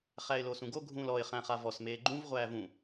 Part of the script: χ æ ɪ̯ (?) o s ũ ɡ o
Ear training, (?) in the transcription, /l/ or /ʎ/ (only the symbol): l